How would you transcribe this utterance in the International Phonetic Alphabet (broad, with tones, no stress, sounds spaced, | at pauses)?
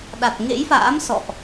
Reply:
ɗ a˨˩ t̚ ŋ ḛ˧˥ j f a̰ː˧˥ m s ɔ̰˧˨ ʔ